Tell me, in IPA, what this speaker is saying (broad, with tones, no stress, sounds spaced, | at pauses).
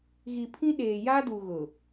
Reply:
ɣ i˨ pʰ ĩ˦ ɗ eː˨ j a˦ d u˨ ɣ ʊ˨